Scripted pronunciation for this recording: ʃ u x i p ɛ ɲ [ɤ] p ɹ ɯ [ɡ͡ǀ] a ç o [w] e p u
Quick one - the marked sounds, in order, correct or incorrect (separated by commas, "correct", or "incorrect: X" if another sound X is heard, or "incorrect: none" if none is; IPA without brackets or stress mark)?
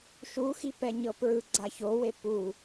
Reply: correct, correct, correct